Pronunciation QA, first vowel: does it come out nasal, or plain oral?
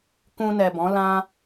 nasal